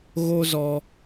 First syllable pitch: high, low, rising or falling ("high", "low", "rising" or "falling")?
high